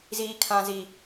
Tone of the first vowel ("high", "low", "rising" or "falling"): high